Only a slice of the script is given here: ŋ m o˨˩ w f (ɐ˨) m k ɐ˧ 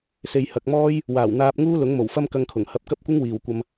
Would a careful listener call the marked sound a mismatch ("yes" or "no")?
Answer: yes